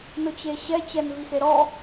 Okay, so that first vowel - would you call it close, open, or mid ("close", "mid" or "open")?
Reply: close